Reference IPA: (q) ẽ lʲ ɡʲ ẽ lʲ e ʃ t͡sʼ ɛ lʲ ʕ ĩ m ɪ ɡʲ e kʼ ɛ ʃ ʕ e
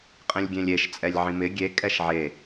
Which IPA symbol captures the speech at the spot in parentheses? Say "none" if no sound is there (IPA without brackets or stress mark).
qʼ